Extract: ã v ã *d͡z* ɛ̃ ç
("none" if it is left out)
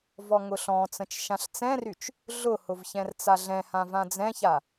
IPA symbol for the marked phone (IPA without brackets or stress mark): d͡z